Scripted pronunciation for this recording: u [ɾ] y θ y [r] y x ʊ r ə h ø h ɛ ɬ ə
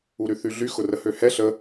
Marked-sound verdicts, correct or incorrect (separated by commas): correct, incorrect